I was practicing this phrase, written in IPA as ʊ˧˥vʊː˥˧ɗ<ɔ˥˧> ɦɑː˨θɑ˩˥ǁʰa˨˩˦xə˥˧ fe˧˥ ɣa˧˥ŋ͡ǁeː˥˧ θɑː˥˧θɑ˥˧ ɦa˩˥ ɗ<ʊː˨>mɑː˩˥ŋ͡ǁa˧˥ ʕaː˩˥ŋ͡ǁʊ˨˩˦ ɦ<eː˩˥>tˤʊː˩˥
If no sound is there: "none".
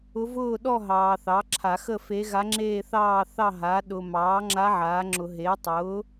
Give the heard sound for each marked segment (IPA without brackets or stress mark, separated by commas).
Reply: ɔ˥˧, ʊː˨, eː˩˥